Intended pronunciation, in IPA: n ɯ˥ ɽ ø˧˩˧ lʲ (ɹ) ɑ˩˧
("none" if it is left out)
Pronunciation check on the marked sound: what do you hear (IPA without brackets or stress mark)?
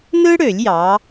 j